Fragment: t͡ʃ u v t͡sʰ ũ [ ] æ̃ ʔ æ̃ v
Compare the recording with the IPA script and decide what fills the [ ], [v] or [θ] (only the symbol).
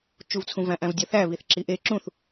v